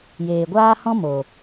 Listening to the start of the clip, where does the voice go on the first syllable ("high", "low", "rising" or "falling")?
low